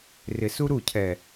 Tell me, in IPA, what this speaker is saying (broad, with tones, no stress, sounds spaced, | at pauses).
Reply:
r ɪ˨ s u˦ ɾ u˦˨ cʰ ɛ˨